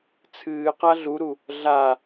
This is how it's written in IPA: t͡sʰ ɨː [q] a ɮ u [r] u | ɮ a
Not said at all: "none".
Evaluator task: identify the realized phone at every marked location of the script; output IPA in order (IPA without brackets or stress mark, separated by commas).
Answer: q, ɾ